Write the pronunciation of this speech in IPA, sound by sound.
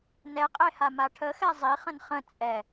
nɛqʼe hamaʈʰəxɛ zˤiχə̃n χə̃ t͡sʼɛ

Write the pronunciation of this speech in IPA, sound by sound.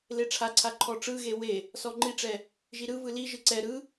leʈ͡ʂʰaǀʰa ǃʰɔʈ͡ʂɯɣe we | sɔŋ͡ǃiʈ͡ʂɛ | ʒiɾɯvɯ liʒɯ ǀɛ ɾɯ

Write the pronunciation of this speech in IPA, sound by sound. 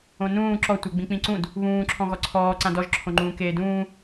õnũː ǁɔ tʷɛɡ͡bĩk͡pĩǀũd | βũː ǁʰɔ̃ɣɔǀʰɔː ǀãdɔʒ ǁʰõŋ͡ǃũːkeːdũː

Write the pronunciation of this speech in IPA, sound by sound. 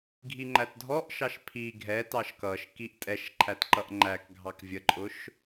ɡʱiŋ͡ǃætdʱɔʔʃɑʃ pʰi ɡʱɛtɑʃ kʌʃ kiʔtʼɛʃ ǃʰætǃʌʔŋ͡ǃæk ɡʱɑkvʲəǃʼʊʃ

